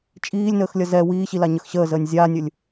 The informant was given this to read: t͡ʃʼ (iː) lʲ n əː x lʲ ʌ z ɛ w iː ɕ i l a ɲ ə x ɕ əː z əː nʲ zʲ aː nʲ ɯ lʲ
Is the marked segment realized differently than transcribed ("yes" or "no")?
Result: no